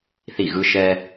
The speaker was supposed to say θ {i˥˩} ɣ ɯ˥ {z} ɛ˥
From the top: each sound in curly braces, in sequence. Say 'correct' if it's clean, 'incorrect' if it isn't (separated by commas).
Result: correct, incorrect